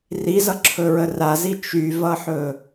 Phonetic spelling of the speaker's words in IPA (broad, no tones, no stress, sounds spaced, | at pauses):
r i z ʌ ǁʰ ɵ ɹ ə r a z i t͡ʃ y v ʌ ħ ɵ